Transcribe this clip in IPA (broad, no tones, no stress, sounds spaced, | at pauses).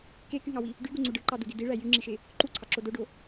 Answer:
k e k y ŋ ɑ w i | ɖ y ɡ u ŋ͡ǀ u ɖ ɯ ǃ ɑ d u d i d i ɭ æ j y ŋ͡ǁ i ʃ e | ǃ u ǀʰ ɑ ǁ o d o ɖ o